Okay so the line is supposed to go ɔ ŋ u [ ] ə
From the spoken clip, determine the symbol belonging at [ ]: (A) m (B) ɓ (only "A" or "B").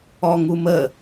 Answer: A